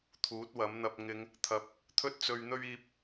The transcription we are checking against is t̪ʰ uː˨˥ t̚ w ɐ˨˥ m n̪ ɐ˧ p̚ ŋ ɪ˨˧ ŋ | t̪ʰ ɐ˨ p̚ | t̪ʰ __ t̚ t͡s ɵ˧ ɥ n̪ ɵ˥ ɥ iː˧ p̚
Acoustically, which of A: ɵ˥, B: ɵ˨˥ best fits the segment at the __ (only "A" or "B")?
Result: A